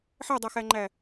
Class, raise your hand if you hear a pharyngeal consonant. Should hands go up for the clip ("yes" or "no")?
yes